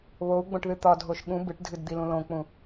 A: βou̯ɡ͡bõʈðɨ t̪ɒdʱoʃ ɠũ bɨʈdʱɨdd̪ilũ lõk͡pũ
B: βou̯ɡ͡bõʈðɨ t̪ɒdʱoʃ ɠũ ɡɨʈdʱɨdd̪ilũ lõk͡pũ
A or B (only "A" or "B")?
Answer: A